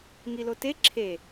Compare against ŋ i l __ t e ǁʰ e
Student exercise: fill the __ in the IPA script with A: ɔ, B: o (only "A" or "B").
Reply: B